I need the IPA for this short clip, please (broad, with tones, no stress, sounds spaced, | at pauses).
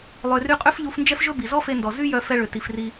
lˠ ø˨ r y˧ qʼ ø˦ f ʎ u˧ f n d͡ʒ ɛ˦ f ʒ ɵ˦ b i˨ z ɔ˦ f e˧ n d ɔ˨ z y˦ j œ˧ f ɛ˧ ɭ ø˨ t i˨ f r i˧